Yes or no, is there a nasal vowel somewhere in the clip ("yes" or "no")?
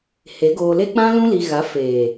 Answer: yes